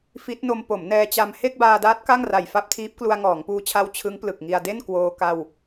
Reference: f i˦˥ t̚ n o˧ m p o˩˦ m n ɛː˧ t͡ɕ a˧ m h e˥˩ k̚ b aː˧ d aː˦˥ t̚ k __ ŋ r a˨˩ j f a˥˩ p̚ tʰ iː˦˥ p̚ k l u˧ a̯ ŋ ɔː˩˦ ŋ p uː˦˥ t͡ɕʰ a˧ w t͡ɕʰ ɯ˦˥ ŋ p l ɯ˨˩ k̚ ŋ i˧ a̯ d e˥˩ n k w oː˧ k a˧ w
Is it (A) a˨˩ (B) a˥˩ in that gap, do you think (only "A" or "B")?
B